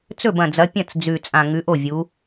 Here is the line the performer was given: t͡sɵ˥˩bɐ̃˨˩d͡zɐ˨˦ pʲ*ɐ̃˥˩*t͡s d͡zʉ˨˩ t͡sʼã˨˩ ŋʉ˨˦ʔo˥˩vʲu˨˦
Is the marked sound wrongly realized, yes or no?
no